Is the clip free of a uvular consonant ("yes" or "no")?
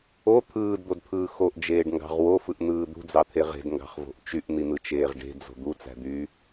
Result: no